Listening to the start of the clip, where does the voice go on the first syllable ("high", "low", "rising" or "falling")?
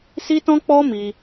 high